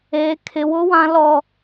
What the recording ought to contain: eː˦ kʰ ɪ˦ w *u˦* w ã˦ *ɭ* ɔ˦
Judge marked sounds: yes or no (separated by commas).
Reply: no, no